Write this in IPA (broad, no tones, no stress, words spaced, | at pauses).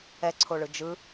ɛǀʰoɭɯ d͡ʒɯ